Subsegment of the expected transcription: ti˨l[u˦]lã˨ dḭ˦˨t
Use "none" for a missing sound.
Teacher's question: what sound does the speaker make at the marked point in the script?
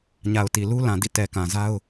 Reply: u˦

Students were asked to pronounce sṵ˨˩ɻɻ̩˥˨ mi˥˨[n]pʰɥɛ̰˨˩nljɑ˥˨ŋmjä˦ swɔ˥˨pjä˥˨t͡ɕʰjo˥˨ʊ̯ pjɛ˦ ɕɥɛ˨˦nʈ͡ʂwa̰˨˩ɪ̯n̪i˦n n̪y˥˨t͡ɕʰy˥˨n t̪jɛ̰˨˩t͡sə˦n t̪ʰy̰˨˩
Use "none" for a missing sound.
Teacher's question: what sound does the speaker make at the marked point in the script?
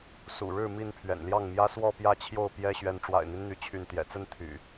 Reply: n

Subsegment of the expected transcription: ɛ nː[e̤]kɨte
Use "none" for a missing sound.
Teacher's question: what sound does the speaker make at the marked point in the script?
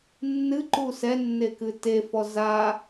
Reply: e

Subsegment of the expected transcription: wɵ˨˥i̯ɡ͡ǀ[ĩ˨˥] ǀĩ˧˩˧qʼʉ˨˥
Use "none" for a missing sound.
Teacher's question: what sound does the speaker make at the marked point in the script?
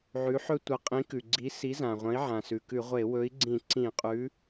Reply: ĩ˧˩˧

